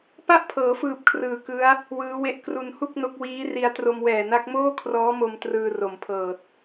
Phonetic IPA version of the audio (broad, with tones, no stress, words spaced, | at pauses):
pa˥˩ʔpʰɤː˩˦fɯː˨˩p̚ kʰrɯː˨˩kɯ˦˥a̯ | wɯː˦˥we˥˩ʔ kru˧n hu˥˩k̚no˦˥k̚ wiː˦˥ri˧a̯ tro˧mwɛː˨˩na˦˥k̚ moː˥˩kʰrɔː˦˥mo˧m trɯː˧ro˨˩mpʰɤː˨˩t̚